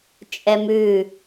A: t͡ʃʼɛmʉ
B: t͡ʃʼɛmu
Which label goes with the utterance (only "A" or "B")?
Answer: A